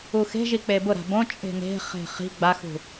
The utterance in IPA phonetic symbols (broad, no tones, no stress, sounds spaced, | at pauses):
u x e̤ ʒ i k͡p e b ʊ ɾ a̤ b õ t͡ʃʼ e̤ n e̤ χ e̤ χ i̤ ɡ͡b a x ṳ